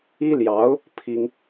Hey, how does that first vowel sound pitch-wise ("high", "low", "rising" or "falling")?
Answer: high